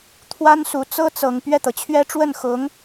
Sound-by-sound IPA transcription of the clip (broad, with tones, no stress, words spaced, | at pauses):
t̪ʰwa˥nsu˨˩ t͡sɤ˥t͡sɤ˨˩ŋ pɥɛ˥˩t̪ɤ˩t͡ɕʰɥɛ˥ ʈ͡ʂwə˥˩nxʊ˧˥ŋ